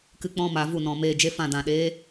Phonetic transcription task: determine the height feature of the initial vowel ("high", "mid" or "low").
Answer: high